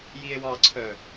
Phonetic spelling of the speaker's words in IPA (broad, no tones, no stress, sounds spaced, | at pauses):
j i e̯ w ɑ ǀʰ œ